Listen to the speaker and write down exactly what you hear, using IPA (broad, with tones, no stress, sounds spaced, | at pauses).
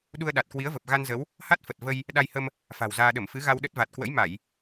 ɗ u˧ ə̯ ɗ a˨˩ t̚ k w i˨˦ ə̯ v ə˨˩ p̚ ɣ a˧ n z ə˨˦ w | h a˦˥ t̚ f ə˨˩ t̚ v ə˧ j | ɗ a˧ j h ə˧ m | f a̤˨˩ w z aː˧ ɗ ə˧˩ m f ɨ˨˦ ɣ a˧ w ɗ ə˦˥ t̚ v a˨˩ t̚ k w ə̰˧˥ j m a˧˩˨ j